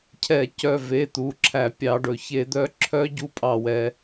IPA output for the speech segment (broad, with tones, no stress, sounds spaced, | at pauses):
cʰ ɛ˧˩˧ c œ˧˩ v e˩˧˩ t̪ u˩˧˩ ǁʰ æ˧˩˧ pʲ ɑ˧˩˧ ɖ ɵ˩˧ ç e˧˩˧ d̪ œ˧˥ ǁʰ œ˧˥ ɟ u˧˥ pʼ ɑ˧˩ w ɛ˩˧